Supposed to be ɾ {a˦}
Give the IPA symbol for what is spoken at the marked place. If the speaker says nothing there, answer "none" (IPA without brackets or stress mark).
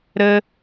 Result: ə˦